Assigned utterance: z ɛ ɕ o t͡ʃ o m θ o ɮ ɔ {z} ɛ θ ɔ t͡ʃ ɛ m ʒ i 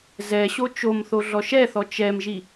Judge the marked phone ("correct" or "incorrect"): incorrect